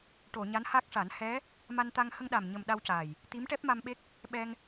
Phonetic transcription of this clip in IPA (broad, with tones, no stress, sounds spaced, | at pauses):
ʈ o˨˩˨ ɲ a˧˥ n h a˦˥ k̚ ʂ a˨˩˦ n h ɛ˧˥ | m a˧ n t̪ a˧ ŋ h ə˧ ŋ ɗ a˨˩ m ɲ ə˨˩ m ɗ a˧ w c a˨˩ j | t̪ i˧˥ m ʈ ɛ˦˥ p̚ m a˧ m ɓ e˦˥ k̚ | ɓ ɛ˧ ŋ